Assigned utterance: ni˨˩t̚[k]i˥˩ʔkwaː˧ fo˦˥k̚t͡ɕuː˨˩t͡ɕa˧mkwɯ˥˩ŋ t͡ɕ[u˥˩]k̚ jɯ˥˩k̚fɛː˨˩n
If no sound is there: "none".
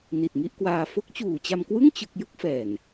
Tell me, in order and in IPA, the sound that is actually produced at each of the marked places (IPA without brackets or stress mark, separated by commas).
ŋ, ɯ˥˩